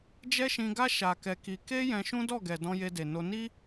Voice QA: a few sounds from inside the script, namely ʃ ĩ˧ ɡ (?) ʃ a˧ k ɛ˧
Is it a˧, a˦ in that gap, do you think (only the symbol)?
a˦